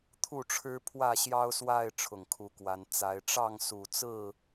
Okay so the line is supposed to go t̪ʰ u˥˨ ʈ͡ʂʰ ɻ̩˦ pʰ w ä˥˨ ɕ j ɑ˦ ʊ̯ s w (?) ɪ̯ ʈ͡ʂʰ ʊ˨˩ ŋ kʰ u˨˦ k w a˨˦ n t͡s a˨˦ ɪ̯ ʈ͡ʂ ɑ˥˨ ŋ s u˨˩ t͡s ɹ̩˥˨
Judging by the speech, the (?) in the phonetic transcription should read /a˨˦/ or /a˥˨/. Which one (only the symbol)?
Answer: a˥˨